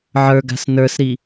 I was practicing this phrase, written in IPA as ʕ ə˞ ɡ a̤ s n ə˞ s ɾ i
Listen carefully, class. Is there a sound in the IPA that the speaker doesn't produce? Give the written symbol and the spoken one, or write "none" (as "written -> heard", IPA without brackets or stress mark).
none